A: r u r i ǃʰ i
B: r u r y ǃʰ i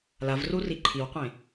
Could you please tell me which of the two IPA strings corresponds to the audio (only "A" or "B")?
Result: A